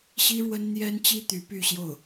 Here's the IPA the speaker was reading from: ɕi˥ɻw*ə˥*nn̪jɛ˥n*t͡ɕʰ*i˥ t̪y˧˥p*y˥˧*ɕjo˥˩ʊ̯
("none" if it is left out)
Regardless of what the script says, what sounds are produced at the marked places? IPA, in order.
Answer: ə˥, t͡ɕ, y˥˧

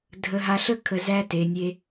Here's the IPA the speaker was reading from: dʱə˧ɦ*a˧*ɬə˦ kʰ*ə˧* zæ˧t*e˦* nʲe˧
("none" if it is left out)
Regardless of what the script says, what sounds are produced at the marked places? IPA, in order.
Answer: a˧, ə˧, e˨

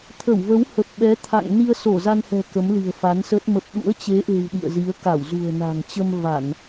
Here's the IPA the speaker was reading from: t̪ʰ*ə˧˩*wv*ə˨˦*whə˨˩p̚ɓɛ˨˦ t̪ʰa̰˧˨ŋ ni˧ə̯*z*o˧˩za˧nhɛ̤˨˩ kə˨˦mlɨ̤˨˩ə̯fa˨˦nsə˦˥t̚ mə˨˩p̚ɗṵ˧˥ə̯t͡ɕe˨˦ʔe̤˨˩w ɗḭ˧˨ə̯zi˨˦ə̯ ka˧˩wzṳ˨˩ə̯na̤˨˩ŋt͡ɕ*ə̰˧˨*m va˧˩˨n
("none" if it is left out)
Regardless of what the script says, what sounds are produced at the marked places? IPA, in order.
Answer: ə˧˩, ə˨˦, s, ə˧

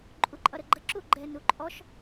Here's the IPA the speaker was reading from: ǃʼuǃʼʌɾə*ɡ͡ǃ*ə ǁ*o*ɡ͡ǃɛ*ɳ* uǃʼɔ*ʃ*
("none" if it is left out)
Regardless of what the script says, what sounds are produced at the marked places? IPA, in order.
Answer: ɡ͡ǃ, u, n, ʃ

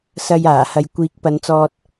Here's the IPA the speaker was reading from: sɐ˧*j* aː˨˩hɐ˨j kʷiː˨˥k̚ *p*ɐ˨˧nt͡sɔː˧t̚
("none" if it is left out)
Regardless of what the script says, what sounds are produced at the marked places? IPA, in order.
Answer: j, p

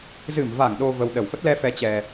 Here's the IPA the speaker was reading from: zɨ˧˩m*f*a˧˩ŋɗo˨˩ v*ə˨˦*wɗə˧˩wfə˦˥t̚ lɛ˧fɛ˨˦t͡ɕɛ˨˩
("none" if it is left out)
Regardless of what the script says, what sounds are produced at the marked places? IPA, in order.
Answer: v, ə˨˩

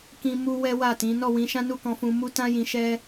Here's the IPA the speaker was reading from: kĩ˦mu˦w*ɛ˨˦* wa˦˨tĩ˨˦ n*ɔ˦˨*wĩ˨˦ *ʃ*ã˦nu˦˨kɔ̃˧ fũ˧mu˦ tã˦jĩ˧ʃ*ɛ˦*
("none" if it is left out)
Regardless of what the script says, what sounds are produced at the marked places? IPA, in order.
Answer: ɛ˦, ɔ˦˨, ʃ, ɛ˦

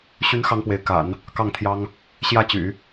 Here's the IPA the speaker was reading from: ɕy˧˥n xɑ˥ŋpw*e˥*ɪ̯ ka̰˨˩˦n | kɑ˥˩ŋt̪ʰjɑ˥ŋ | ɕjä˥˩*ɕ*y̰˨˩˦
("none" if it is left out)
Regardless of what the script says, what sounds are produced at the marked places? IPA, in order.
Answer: e˧˥, t͡ɕ

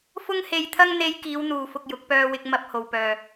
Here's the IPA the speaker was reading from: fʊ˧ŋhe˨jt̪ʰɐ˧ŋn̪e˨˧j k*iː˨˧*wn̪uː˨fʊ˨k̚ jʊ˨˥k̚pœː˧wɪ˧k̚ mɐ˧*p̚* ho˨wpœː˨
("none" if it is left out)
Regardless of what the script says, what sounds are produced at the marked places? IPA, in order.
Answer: iː˨˧, p̚

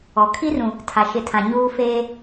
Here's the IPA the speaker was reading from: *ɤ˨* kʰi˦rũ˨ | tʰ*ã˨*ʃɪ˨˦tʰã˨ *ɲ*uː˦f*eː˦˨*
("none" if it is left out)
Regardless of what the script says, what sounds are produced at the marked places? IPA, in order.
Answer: ɔ˨, a˨, ɲ, eː˦

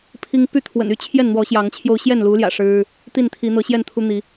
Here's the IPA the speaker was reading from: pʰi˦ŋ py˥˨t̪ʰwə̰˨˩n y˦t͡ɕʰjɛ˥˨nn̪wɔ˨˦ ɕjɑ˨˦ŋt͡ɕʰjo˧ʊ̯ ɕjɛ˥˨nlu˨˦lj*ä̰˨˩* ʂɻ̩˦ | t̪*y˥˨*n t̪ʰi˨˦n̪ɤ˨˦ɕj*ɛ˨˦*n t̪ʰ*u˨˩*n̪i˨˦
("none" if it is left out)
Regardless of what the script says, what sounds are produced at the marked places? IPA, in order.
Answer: ä̰˨˩, i˥˨, ɛ˥˨, u˦

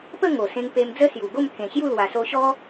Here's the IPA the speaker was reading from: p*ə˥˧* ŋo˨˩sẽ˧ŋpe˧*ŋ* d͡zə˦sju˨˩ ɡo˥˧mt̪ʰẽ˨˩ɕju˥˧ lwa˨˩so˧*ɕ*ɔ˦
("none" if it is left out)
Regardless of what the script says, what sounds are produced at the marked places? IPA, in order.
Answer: ə˥˧, m, ɕ

